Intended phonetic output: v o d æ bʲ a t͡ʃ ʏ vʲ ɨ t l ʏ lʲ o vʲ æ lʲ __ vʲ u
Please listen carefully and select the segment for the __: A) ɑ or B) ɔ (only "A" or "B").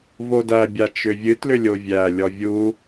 B